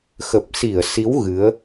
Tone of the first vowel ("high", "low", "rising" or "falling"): low